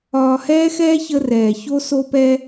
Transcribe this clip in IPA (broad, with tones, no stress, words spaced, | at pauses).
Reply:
ɒː˧hɛː˥xɛː˥ çə˧rɛː˩ ço˧so˧pɛ˧